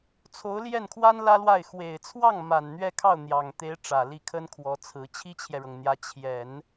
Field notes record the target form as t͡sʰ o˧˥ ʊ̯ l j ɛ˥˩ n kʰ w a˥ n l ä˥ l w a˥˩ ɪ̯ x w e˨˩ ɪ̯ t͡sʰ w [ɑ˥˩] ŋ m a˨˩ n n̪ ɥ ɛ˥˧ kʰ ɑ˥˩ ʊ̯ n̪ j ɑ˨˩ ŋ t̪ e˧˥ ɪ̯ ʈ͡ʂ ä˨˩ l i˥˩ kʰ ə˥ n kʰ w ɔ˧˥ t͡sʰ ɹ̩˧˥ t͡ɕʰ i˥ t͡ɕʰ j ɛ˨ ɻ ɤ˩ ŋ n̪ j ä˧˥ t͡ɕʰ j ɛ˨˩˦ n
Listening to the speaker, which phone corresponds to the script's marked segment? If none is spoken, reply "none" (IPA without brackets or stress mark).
ɑ˥˩